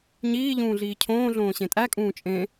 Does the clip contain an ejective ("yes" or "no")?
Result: yes